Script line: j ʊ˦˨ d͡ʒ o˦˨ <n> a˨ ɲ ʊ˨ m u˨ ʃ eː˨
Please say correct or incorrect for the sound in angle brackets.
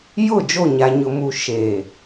incorrect: ɲ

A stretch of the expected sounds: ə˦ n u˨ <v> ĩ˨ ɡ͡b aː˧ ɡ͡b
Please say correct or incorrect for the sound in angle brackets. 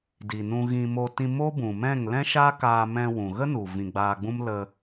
correct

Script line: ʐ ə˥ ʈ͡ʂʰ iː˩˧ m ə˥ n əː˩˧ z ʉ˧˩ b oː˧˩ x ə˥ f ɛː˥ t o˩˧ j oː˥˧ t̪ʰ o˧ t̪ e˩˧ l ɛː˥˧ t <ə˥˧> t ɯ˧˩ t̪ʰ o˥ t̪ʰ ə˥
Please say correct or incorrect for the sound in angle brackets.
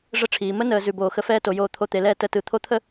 correct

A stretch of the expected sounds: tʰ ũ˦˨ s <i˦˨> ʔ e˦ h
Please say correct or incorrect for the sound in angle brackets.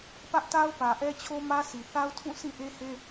incorrect: ĩ˦˨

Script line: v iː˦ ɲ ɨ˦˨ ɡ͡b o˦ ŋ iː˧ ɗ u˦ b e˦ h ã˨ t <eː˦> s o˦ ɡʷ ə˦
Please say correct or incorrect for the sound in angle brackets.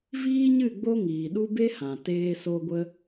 correct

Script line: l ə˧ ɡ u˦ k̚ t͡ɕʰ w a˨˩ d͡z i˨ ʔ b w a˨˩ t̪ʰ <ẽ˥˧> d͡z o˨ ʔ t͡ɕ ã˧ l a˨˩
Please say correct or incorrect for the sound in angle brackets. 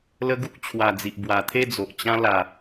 incorrect: e˥˧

